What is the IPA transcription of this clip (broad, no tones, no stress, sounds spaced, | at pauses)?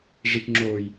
ʐ i k ŋ͡ǁ oː j